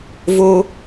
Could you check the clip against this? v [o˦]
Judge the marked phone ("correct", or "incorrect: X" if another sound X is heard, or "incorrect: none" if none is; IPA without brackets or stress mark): correct